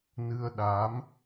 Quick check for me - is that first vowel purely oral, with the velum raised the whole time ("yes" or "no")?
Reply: yes